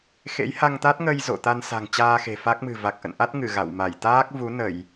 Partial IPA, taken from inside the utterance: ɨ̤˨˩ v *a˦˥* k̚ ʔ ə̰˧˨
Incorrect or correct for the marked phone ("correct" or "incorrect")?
incorrect